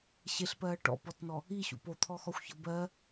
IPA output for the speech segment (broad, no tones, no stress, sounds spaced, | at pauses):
ɕ e ɬ p ɜː ʈ ɔ̰ p ɔ t n ɔ | i ɕ ṵ p o t̪ʰ ɔ x ɔ xʷ ç ʌ b ɜ